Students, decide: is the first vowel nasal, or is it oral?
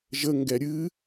oral